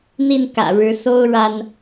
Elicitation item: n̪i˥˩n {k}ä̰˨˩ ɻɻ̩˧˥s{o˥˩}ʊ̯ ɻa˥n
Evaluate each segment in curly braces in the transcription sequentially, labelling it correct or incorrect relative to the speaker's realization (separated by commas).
correct, incorrect